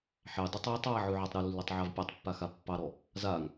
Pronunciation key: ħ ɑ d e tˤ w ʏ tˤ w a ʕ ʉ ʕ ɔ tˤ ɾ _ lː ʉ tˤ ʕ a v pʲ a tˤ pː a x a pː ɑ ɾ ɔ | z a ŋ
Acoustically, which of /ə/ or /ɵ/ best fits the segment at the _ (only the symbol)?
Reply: ɵ